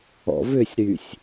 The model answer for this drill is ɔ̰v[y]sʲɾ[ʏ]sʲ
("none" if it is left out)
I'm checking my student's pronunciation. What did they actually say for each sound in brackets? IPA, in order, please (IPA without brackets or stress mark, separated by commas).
ʏ, y